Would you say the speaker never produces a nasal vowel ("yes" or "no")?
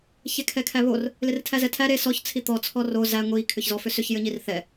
yes